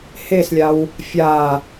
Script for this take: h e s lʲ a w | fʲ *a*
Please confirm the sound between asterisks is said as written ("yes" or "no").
yes